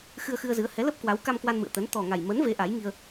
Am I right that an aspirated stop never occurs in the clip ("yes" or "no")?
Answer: yes